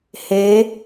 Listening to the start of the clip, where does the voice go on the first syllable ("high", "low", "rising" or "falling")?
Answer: rising